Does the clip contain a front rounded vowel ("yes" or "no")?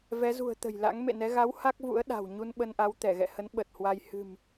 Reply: no